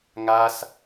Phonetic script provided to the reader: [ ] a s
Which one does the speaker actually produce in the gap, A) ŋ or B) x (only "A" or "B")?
A